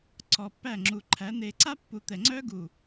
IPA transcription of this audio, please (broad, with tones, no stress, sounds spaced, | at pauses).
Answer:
ǀ ɔ˨ pː æ˦˨ ŋ͡ǁ u˨ ǃʰ æ˨˦ n̪ e˨ ǀ a˦ pː u˨ t̪ ɛ˨ ŋ͡ǀ œ˦ ɡ u˨